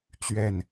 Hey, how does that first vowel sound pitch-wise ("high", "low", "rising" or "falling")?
falling